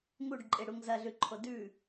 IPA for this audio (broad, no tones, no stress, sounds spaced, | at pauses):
ŋ u ɖ ǃʼ e ɽ u ŋ z ɐ ɮ ʉ ǃʰ o d ʉ